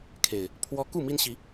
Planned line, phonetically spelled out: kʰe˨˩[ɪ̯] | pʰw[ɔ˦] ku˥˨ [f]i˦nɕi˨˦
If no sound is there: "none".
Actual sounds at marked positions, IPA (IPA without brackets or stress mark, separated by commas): ɪ̯, ɔ˦, m